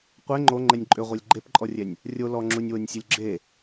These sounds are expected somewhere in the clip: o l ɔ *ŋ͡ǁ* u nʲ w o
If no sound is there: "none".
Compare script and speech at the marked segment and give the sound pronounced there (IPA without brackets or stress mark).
ŋ͡ǁ